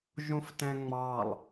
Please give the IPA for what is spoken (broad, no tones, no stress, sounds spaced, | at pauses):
ʒ ũ f t ɛ̃ ŋ͡m ɑ lˠ